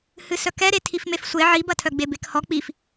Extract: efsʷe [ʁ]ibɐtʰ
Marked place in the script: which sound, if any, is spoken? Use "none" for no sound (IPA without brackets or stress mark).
ʕ